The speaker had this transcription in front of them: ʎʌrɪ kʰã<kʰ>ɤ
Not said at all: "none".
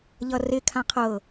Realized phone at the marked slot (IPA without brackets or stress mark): qʰ